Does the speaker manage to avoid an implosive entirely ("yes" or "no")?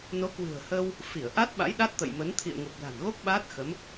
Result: no